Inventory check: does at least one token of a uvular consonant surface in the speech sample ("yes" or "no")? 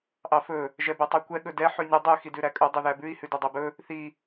no